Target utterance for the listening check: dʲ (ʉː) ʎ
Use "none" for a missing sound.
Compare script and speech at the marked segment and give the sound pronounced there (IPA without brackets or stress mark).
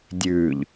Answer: ʉː